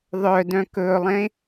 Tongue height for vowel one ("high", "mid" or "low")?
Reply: mid